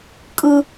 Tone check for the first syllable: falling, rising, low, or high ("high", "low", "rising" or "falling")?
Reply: high